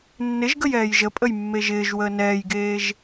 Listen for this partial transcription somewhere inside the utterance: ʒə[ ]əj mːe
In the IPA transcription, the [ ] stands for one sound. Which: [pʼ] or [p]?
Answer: pʼ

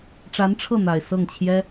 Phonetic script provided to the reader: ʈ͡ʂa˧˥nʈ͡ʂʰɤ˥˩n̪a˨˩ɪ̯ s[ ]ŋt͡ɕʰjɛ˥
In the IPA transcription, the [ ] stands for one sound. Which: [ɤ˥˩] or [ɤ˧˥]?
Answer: ɤ˥˩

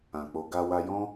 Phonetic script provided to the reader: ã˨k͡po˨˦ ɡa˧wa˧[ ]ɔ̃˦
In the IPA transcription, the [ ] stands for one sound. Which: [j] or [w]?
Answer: j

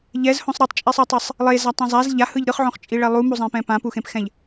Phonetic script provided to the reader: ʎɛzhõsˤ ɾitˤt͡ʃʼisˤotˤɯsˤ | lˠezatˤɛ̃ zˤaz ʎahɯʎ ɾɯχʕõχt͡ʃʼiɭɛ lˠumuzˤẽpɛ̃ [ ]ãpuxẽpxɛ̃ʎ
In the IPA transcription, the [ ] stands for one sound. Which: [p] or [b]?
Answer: p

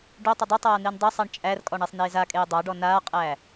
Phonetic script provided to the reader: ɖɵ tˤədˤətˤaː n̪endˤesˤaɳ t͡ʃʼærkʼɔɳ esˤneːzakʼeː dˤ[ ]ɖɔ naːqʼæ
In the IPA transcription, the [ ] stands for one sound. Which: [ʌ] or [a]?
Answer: a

